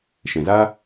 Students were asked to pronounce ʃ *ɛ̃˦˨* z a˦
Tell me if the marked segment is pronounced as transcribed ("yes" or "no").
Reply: no